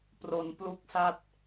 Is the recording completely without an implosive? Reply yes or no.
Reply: yes